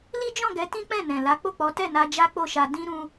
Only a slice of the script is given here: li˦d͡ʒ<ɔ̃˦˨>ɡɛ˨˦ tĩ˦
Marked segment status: correct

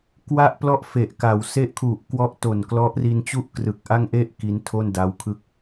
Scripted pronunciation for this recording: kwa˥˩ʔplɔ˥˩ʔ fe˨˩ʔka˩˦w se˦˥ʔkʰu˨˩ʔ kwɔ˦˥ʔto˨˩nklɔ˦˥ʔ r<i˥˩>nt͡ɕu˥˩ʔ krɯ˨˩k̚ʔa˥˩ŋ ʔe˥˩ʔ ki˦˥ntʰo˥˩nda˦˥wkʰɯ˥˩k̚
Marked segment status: incorrect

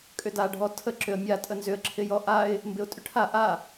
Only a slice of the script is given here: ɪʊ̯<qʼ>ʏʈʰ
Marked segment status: incorrect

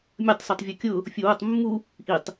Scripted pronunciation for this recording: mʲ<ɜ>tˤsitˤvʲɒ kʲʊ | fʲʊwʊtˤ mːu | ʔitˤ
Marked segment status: correct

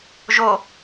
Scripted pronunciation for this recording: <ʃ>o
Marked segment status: incorrect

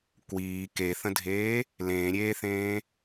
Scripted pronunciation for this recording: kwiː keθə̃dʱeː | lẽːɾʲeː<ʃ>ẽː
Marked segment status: incorrect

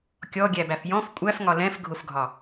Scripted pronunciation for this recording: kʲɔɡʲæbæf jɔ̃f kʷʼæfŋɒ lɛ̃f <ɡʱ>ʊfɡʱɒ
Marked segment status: correct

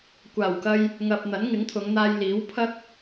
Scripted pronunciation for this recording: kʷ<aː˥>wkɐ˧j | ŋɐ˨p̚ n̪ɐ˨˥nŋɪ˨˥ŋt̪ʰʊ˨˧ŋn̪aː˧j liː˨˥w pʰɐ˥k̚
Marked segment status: incorrect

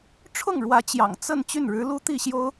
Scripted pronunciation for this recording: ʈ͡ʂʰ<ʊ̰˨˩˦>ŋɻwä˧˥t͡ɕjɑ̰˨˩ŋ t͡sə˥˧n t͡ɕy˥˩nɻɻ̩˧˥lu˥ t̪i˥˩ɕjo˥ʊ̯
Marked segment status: incorrect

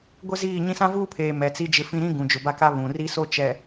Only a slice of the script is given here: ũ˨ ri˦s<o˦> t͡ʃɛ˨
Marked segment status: correct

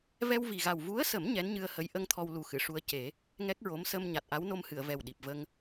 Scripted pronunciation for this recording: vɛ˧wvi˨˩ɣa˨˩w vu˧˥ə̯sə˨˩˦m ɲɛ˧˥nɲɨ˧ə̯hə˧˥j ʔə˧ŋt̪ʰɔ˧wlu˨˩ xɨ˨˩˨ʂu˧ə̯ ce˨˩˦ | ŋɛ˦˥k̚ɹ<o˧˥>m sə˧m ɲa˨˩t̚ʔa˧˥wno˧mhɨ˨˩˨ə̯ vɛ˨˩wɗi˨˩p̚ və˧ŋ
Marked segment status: correct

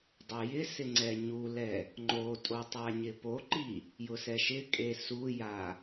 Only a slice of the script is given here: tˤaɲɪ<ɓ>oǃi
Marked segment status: incorrect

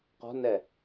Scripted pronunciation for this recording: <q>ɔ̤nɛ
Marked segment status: correct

